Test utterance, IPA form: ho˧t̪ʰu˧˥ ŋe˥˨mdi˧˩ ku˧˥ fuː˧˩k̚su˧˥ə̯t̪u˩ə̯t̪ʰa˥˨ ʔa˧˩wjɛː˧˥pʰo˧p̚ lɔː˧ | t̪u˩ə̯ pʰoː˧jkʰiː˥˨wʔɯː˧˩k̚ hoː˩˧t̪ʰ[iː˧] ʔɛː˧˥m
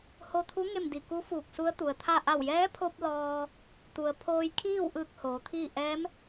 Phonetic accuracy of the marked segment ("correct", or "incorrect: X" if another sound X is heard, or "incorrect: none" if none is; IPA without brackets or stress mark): incorrect: iː˥˨